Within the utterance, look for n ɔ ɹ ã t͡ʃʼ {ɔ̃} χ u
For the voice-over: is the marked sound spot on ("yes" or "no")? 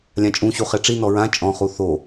yes